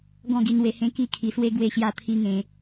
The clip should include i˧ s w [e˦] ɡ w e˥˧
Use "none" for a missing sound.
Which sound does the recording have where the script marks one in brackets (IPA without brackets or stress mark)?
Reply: e˦